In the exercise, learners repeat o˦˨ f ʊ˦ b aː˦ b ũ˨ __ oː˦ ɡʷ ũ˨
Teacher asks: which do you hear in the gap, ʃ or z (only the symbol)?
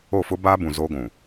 z